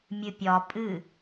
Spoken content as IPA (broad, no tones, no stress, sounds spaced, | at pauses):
mʲ ɨ pʲ ɒ pʼ ɨ